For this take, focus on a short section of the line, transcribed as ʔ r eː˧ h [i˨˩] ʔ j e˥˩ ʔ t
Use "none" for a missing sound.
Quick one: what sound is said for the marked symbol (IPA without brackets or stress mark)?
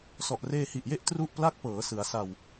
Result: i˨˩